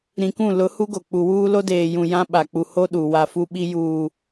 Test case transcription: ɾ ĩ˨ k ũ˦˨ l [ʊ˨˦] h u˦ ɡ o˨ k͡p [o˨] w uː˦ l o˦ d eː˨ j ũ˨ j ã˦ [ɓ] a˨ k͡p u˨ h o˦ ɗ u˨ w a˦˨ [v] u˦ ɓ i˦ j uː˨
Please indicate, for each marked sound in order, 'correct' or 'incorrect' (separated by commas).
correct, incorrect, correct, incorrect